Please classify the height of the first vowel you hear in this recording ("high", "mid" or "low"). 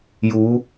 high